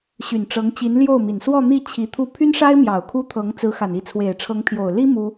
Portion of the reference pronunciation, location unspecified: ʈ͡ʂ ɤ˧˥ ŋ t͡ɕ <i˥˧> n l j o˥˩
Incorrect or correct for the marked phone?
incorrect: i˧˥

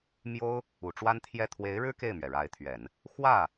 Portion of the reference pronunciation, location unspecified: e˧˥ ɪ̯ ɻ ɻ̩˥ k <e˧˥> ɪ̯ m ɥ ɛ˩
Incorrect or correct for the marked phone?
incorrect: e˥˩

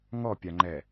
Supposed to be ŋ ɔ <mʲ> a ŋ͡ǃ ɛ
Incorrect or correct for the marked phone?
incorrect: pʲ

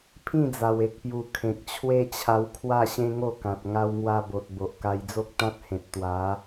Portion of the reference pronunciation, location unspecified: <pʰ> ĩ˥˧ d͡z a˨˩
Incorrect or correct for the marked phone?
correct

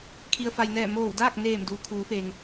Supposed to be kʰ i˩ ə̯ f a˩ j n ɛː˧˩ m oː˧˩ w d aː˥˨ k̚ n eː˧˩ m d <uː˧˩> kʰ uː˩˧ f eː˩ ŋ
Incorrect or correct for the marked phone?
incorrect: uː˩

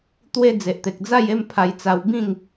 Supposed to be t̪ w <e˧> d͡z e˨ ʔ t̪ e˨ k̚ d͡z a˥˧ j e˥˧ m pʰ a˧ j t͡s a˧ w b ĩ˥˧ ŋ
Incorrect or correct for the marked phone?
incorrect: e˦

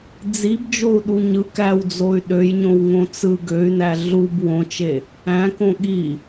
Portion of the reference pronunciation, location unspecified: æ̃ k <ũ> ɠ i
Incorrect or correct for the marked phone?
incorrect: õ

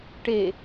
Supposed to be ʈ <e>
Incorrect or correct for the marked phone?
correct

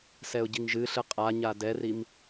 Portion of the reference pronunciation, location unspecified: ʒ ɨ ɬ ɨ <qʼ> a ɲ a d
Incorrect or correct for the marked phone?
correct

